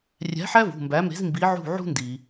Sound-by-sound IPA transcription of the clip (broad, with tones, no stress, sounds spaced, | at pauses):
rʲ æ̤˨˥ ħ æ˥ v ṳ˩˧˩ m b æ˨˥ m e̤˨˥ z m b i˨˥ ʕ ṳ˦˨ ʕ ṳ˥ n d i˩